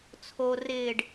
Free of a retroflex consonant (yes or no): no